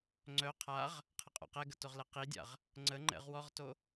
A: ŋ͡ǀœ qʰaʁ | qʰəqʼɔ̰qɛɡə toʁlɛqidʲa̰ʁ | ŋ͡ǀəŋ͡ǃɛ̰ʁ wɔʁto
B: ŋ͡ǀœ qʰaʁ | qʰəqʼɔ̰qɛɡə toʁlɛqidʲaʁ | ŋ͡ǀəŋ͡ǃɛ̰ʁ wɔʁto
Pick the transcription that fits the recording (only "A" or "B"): A